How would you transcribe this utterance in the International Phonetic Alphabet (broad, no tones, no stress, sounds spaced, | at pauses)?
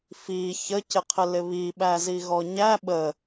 f i ç ə c ɪ qʰ ɪ l ɪ β i ɓ æ z i ɣ ɔ ɲ æ ɓ ə